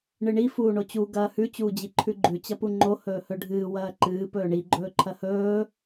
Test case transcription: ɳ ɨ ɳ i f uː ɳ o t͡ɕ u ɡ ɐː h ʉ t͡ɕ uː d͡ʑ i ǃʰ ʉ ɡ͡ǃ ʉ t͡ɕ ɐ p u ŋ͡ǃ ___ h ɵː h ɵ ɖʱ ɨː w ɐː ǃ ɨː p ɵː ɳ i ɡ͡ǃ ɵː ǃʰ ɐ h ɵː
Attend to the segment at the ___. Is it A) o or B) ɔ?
A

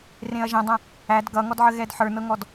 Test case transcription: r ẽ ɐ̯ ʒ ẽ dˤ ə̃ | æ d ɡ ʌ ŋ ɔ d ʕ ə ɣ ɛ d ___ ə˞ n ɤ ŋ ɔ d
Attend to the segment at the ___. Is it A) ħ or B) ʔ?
A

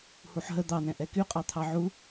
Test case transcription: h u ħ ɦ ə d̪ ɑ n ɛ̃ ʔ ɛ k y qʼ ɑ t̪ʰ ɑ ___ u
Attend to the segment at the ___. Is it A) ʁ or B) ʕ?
B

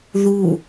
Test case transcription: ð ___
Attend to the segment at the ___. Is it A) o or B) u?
B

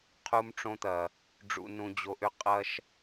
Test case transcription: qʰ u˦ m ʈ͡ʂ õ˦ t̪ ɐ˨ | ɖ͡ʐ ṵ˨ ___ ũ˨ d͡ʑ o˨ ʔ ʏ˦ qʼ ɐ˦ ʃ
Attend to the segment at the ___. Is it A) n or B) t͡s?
A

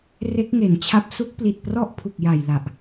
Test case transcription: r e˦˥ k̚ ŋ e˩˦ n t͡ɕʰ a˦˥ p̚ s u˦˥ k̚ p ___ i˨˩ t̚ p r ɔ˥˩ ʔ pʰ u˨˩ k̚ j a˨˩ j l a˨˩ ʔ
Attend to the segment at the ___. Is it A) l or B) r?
A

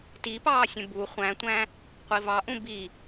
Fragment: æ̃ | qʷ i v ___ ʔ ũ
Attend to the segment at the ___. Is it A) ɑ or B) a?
A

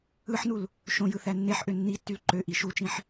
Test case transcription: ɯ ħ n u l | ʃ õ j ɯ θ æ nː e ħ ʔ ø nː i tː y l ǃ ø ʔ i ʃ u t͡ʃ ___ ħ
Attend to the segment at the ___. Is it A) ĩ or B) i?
A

